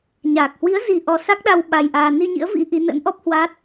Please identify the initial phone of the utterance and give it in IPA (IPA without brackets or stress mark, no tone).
ɲ